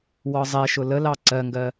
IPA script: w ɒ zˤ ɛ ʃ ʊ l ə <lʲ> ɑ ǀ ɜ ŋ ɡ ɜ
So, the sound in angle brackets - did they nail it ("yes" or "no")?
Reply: no